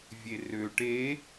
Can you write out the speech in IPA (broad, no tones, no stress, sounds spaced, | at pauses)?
vʲ e r ø ʈ e